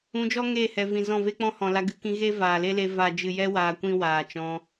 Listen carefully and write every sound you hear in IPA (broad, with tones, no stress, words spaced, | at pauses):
ũ˧ d͡ʒɔ˦ŋeː˦˨hɛ˨vĩ˨ zɔ̃˦˨ve˦k͡pɔ̃˦ hɔ̃˨la˧ ɡɨ˧kĩ˧ ɣe˦vaː˨le˦le˧ va˨d͡ʒɨ˨jɛ˧ waː˧kʷĩ˦waː˨t͡ʃɔ̃˧